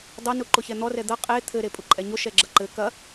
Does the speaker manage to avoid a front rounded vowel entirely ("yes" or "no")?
yes